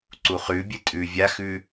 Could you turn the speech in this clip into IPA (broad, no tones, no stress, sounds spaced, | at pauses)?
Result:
ǀ u χ ʉ bʲ ɨ tʼ ʉ vʲ a x ʉ